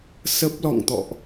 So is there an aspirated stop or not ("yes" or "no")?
no